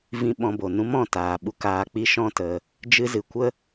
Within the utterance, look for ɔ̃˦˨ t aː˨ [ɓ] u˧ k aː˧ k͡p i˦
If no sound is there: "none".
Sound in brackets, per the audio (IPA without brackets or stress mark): ɓ